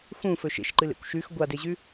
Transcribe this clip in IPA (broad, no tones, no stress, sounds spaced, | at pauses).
x ũ f ɵ ʃ ḛ ʃ ǃ ɨ l ḛ kʷ ʃ ʉ x ɡʷ a d e ʑ ʉ